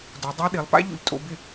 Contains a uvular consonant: no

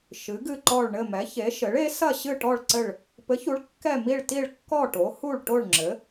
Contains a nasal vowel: no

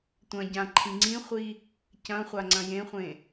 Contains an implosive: no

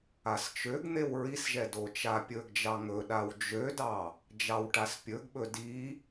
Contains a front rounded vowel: yes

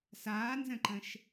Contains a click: yes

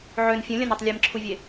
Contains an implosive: no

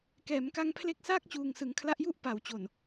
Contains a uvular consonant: no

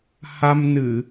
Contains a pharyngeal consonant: no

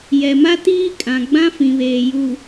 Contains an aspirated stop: no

